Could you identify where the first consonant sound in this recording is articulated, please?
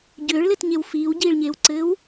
palatal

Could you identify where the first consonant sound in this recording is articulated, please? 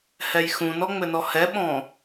glottal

